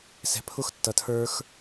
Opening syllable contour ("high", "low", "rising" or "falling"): low